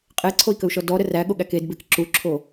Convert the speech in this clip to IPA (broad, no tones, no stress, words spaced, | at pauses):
qʼeǀʰoi̯kəu̯ʃɔ dɔɾə ræɠoɠæk edbek ǁuǁʰo